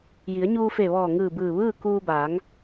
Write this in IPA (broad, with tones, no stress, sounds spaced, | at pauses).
j i˩˧ ə̯ ɲ uː˧ f e˧˩ ʋ ɔː˧˩ ŋ ɯː˧˩ b ɯː˧˩ ʋ ɯː˥˨ k uː˧ b aː˩˧ ŋ